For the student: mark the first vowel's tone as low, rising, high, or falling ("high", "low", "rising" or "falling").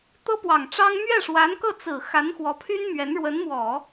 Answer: high